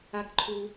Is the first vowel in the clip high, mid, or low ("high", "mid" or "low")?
low